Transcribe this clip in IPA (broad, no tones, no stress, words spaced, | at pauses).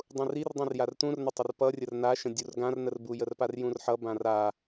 dˤũrir dˤĩrjartũrnə tˤərpʌ rʲərnaʃə̃ dʲurɡãrnərbu jərparjũrħʌ bãra